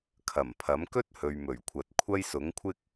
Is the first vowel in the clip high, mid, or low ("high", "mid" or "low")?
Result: low